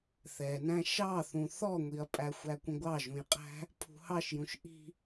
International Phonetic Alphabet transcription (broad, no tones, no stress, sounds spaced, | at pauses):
θ ɛ n æ̃ ʃ ɑ θ ũ θ ɔ ŋʷ i ɐ̯ pʼ æ xʷ æ kʷ ə̃ ɡʷ ɑ ʒ ũ j qʼ æ̤ | pʰ ṳ h ɑ ʃ j ũ ʃ ʔ i̤